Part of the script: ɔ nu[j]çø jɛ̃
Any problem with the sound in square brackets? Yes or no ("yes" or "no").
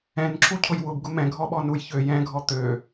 no